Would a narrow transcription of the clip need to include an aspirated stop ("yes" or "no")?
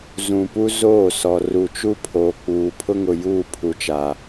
yes